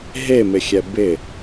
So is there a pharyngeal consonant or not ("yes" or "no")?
no